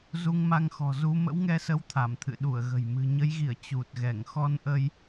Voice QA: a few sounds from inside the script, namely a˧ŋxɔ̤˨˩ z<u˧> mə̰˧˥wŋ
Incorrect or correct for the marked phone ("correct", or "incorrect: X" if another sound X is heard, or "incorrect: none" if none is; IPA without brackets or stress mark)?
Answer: correct